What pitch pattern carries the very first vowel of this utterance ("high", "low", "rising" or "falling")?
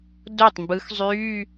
falling